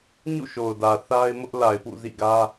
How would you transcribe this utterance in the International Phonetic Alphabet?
ɲ ṵ˦˨ ʃ o˨ ʊ̯ d ä˨ θ a˦ ɪ̯ m ʊ˦ ʔ l a˨ ɪ̯ p ṵ˦˨ z ḭ˦˨ ɡ ä˦

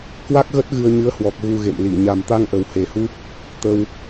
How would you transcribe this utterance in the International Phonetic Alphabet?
k w a˦˥ k̚ ɣ ə˦˥ t̚ ɣ ɨ˧ ə̯ ɲ ɨ˨˦ ə̯ h w ɔ˨˩ k̚ ɣ u˧ ɣ ḛ˧˨ m l i˧˩ ɲ a˨˩ m t̪ a˧ ŋ ʔ ə˨˩ w h e˨˩ h u˦˥ p̚ | t̪ ə˧ w

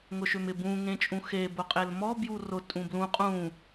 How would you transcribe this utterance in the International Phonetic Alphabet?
ŋ ʊ ʃ ʏ m ɪ b ũ ŋ ẽ t͡ʃʼ ũ x e b ʊ qʼ e l m ɔ b j u r ʊ tʼ ũ b l ũ qʼ ũ

